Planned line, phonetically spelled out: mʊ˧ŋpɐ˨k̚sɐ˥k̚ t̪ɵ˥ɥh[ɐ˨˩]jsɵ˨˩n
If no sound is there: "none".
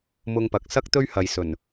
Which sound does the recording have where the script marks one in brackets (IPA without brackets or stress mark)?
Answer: ɐ˨